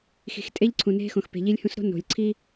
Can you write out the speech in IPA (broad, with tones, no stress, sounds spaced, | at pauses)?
x i̤˨ x tʼ e˦ ʎ ǀʰ ũ˨ n e̤˦ x õ˨ x p e̤˨ ʎ i˦ lʲ h ũ˦ s ɾ o̤˦ n o̤˨ lʲ ǀʰ i˦